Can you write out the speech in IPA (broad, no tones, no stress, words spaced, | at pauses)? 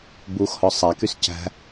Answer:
buxhɔ sˤækys cæ̤